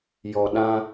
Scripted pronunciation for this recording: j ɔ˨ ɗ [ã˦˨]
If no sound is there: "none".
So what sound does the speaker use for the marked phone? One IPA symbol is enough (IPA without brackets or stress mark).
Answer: ã˦